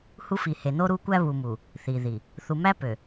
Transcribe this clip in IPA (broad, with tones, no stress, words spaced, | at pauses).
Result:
hu˦fi˨he˨ no˦ɾu˦kʷæ˦ βu˨mu˨ | θi˨ði˨ | θu˨mæ˦pø˨